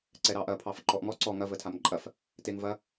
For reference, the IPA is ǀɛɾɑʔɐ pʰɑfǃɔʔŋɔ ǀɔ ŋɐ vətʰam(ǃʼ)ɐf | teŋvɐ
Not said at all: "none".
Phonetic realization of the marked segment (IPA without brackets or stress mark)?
ǃʼ